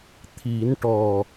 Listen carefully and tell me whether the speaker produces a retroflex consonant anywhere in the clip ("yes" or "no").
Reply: yes